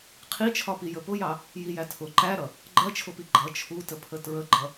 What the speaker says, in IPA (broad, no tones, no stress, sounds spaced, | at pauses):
qʰ i t͡ʃʰ ɒ p i j ə p ʊ j ɑ | j i j æ tʰ ʊ ǃ æ ɾ ʌ | ɡ͡ǃ ɜ t͡ʃʰ ʊ p i ɡ͡ǃ ʌ t͡ʃʰ u t ə pʰ ə t ɹ ə ɡ͡ǃ ʌ